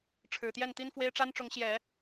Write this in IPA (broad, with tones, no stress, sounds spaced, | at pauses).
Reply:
ʈ͡ʂʰ ɻ̩˨˩ t̪ j ɛ˥˩ n t̪ i˥ n f w e˥ ɪ̯ ʈ͡ʂ a˥ n ʈ͡ʂ ʊ˧˥ ŋ ɕ j ɛ˨˩˦